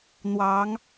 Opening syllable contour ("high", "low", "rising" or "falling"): rising